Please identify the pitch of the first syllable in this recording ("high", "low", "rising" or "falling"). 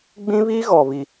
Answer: high